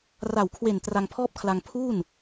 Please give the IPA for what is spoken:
r a˨˩ w kʰ w e˨˩ n t r a˧ ŋ pʰ ɔː˥˩ p̚ kʰ l a˧ ŋ pʰ uː˥˩ n

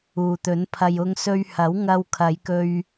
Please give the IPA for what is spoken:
uː˨ t̪ ɵ˨˥ n pʰ ɐ˧ j ʊ˧ ŋ s ɵ˧ ɥ h ɐ˨˥ w ŋ ɐ˧ w kʰ ɐ˨˧ j k ɵ˧ ɥ

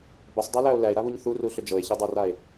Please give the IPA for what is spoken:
b ə sˤ dˤ æ l æ o̯ l æ e̯ ɾ a β u ɲ θ u r u ɬ ʏ d͡ʒ ɤ e̯ ç i dˤ a r a e̯

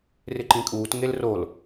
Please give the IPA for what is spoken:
r ɪ ǃ ĩ kʼ uː t ŋ e l r o l

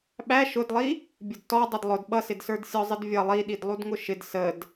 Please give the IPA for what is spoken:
ɓ æ ʃ ʊ d lˠ i | bʲ ʊ d t ɔ dˤ ʌ d lˠ ʊ d ɓ ʌ s ɪ d s ə˞ d sʲ ɔ zˤ ɪ d vʲ ʌ lˠ i ɗ i d lˠ u d ŋ ʊ ʃ ɪ d s ə d

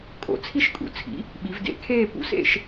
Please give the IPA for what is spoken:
kʼ o̰˨˩ t͡sʰ i˥˧ ʃ kʼ ṵ˨˩ t͡sʰ ḭ˩˥ | ɓ i˩˧ v d ḛ˨˩ kʰ eː˥˧ p ṵ˧ s ḛ˥˧ ʃ

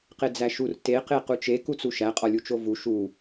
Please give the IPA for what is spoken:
q e d͡z æ ʃ u r t e q e q u t͡ʃ e k u t͡s u ʃ æ qʼ ɒ lʲ u t͡ʃ o v u ʃ u

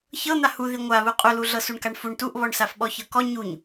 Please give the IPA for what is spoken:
ç ɤ n̪ a h u ð i ŋʷ a β u qʼ u l u ɮ ɤ s u ɳ k a ɳ f u ɳ t u ʔ β ɔ ɳ s a f ɓ ɔ ç ɤ k ɔ ɲ u ɲ

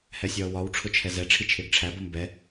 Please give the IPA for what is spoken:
h ɛ sʲ ʌː w ɒ w ʈ͡ʂʰ ʊ t͡ʃʰ ɛ z ɛ ʈ͡ʂʰ i t͡ʃʰ ɪː ɡ ʈ͡ʂʰ æ b ʌ m b ɛ

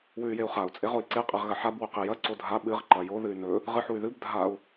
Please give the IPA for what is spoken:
w ʉ y̯ j e u̯ χ a u̯ t͡sʼ e ʁ o i̯ ǀ e qʼ e ʁ ɣ ɐ ħ a b w ɵ q i j ɐ ǀ o dʱ a ɓ ɨ ʁ ǃ ɐ j o ð ɨ y̯ n ɵ | ʁ ɨ ħ u y̯ ð ɨ b dʱ a u̯

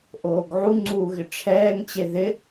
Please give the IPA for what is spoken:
ʔ oː ɡ ʕ u ŋ͡ǀ uː ɣ ɪ ʈ͡ʂʰ ɛː ŋ t͡ɕ e ð ɪ

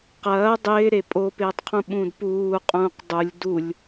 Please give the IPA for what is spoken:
q ɐː dˤ ɪː ɾ e pʼ o p ɪː tˤ qʰ ũ ɓ ũ d p uː qʼ ũː q dˤ u lʲ d u lʲ

